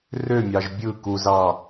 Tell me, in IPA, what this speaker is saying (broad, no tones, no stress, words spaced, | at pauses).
rømʲɑʒ bʲɯ kuzɑ